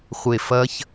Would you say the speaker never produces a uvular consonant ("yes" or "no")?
no